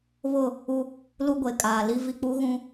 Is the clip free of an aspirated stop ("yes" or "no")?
yes